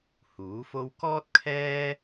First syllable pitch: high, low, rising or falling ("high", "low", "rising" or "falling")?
rising